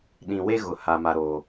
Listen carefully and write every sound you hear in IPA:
ɗ ĩ˨ w e˦ ɣ ʊ˨ h a˦ m a˦ ɾ oː˦

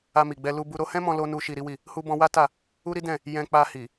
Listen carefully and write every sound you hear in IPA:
a˧ m i˨ ɡ͡b ɛ˧ l u˧ b u˧ ɾ o˧ h ɛ̃˦ m ɔ̃˧ l o˧ n u˦ ʃ i˧ ɾ i˦ w i˦˨ | h u˧ b ɔ̃˧ w a˦ t a˦˨ | u˦ ɾ i˦ d ɛ̃˦˨ | j ɛ̃˧ k͡p a˧ h i˨

